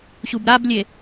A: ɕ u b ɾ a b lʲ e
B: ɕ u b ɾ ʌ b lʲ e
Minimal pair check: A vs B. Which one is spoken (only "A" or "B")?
A